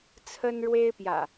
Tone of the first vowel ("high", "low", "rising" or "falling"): high